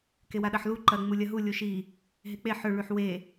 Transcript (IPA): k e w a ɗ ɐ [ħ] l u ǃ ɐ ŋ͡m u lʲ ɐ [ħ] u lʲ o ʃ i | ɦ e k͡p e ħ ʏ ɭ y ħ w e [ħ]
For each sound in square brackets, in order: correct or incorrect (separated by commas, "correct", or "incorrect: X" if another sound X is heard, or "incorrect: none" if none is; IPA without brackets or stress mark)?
correct, incorrect: ɦ, incorrect: none